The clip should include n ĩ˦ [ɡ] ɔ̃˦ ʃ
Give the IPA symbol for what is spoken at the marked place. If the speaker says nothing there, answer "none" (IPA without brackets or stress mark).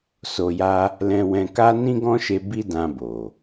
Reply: ɡ